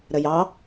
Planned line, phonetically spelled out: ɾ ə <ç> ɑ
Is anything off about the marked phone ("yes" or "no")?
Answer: yes